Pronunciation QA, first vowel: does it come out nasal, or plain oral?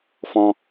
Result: nasal